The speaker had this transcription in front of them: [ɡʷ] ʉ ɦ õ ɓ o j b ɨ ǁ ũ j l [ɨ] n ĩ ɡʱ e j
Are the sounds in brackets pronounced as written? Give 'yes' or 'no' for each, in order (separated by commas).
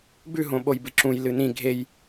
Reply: no, yes